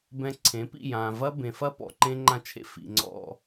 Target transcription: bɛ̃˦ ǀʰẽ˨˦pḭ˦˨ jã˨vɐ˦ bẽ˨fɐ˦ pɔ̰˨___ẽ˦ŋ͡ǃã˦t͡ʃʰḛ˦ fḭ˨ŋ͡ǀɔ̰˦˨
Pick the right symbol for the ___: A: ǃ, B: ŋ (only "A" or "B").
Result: A